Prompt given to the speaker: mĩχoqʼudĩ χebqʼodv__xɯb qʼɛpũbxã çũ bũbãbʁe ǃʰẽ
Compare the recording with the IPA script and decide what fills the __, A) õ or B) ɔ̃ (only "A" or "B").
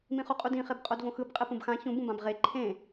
A